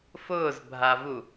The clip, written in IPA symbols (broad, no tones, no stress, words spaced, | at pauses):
fʊːzbʱavu